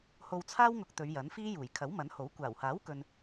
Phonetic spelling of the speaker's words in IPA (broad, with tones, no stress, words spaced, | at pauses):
ho˧wt͡sʰaː˥wŋʊ˧k̚ t̪ɵ˨˧ɥjɐ˨˥nfiː˥ juː˨˩j kʰɐ˨˥wmɐ˨˥nho˨˥w kʷaː˨˩whaː˨˥wkɵ˨n